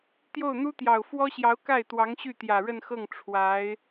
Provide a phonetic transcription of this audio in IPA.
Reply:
t̪ j o˥˩ ʊ̯ n̪ u˥ t̪ j ɑ˨˩ ʊ̯ f w ɔ˥ ɕ j ɑ˧˥ ʊ̯ k a˥˩ ɪ̯ t̪ w ɑ˧˥ ŋ ɕ y˥˩ t̪ j ä˨˩ ɻ ə˥˧ n x ɤ˥˩ ŋ ʈ͡ʂʰ w a˧˥ ɪ̯

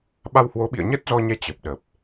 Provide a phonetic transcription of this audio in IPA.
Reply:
ɓ a˧ w h w o˨˦ ɓ ḭ˧˨ ə̯ ɲ ə˦˥ t̚ z ɔ˧ ɲ ɛ˧ t͡ɕ ə˨˩ p̚ ɗ ə˨˩ p̚

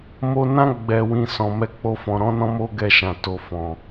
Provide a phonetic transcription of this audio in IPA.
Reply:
m o˧ n ã˦ ɡ͡b ɛ˧ w ĩ˧ s ɔ̃˨ m ɛ˧ k͡p o˦ f ɔ̃˧ ɾ ɔ̃˦ n ɔ̃˦ m o˦ ɡ ɛ˧ ʃ ã˨ t o˨ f ɔ̃˨

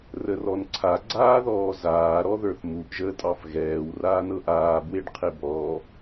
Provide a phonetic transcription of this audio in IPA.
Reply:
r ə r ɔ n ǀʰ a ɡ͡ǀ aː ð ɔː z aː ɾ ɔ ð ə˞ θ m u ʔ ʒ əː tʼ ɑ f ɣ ɛː w r aː n ɤ ʔ aː b w e ɖ qʰ e b ɔ

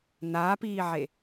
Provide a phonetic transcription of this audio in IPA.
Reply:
n aː p iː ʕ e

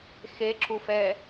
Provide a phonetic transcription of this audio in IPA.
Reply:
x e ǁ u f ɛː

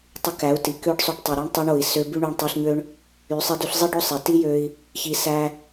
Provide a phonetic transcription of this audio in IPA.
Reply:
tˤ y˧ k æ˨˦ u̯ t i˨ k ø˦ ɖ sˤ y˧ ɖ tˤ i˨ ɾ i˦ ɳ tˤ i˧ ɳ o˨ i̯ s ø˧ b y˦ ɳ y˧ ɳ tˤ e˧ ɬ ɲ ø˦ ɳ | y˨˦ sˤ i˧ d y˧ ɬ zˤ i˦ ɖ o˦˨ sˤ e˨ t i˦ j ø˦ i̯ | ç i˧ s æ˦

